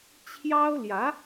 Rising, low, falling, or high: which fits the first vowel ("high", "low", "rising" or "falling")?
high